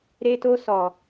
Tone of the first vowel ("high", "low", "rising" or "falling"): high